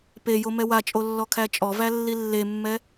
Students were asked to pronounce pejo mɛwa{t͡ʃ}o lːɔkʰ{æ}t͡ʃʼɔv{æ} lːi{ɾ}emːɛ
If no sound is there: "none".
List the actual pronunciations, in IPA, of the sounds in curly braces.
t͡ʃʼ, æ, æ, lː

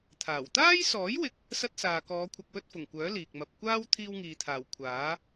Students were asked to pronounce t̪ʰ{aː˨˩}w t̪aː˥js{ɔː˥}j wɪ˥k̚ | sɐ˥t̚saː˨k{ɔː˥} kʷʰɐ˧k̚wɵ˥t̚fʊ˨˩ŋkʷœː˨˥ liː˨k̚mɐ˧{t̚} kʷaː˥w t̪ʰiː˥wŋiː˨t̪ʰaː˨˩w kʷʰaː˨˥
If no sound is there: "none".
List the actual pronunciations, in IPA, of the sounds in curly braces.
aː˨˩, ɔː˨˥, ɔː˨˧, p̚

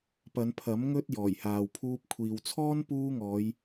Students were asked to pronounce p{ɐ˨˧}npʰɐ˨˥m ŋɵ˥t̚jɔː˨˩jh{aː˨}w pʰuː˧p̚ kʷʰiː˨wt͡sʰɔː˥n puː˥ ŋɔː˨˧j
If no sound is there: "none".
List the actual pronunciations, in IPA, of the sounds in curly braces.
ɐ˨˧, aː˨

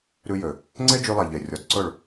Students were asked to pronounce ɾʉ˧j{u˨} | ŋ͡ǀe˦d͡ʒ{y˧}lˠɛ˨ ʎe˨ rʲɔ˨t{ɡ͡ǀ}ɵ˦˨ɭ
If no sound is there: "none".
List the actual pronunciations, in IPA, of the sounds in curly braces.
ø˨, y˧, ǀ

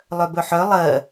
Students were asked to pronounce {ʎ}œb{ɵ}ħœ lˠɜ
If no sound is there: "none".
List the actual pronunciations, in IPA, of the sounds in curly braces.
lˠ, ɵ

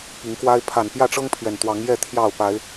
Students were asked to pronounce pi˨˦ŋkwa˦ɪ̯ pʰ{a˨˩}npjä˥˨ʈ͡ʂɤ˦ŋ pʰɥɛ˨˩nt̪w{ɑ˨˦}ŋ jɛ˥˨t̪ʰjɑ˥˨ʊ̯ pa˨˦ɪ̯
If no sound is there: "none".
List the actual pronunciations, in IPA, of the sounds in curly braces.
a˨˩, ɑ˨˦

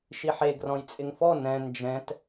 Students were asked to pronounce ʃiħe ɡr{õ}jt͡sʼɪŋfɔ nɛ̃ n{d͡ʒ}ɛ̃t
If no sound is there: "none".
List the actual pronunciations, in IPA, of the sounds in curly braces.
ɔ̃, d͡ʒ

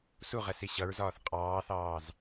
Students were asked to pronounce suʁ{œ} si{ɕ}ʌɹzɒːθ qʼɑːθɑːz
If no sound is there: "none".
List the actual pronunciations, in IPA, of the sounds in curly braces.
ɛ, ɕ

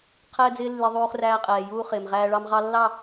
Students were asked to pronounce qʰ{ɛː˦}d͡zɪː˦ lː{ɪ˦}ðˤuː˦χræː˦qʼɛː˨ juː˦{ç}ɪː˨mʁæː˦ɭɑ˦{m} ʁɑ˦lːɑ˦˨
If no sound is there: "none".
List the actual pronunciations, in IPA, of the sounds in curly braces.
ɛː˦, ɪ˦, χ, m

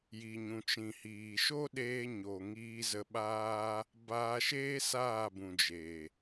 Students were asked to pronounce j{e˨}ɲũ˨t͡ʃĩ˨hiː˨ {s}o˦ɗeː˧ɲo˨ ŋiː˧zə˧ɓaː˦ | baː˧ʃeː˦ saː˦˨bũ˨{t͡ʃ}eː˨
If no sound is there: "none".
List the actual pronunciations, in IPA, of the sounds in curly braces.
i˨, ʃ, d͡ʒ

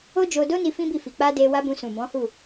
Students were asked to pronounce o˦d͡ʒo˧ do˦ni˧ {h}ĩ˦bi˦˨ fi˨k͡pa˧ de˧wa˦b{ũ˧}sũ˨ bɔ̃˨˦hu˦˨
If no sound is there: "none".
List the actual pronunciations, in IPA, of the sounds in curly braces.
f, ũ˧

